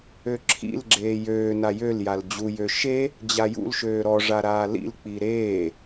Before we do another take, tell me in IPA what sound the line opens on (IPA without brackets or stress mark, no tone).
ø